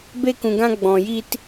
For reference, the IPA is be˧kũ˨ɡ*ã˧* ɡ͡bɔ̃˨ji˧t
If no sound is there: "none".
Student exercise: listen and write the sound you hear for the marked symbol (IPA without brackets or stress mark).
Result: ã˧